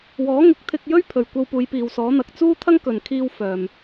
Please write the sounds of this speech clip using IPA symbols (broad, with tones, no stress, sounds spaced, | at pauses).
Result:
w ɔː˨˥ ŋ ɪ˨˥ k̚ t̪ʰ ɪ˧ k̚ j ɵ˥ ɥ pʰ ɵ˨ ɥ kʷ ɐ˧ w p uː˨˧ j p iː˨ w s ɔː˨˥ n̪ ɐ˨ k̚ t͡s uː˥ t̪ʰ ɐ˥ ŋ k ɵ˨ n kʰ iː˧ w f œː˨ m